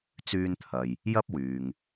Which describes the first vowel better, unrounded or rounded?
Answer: rounded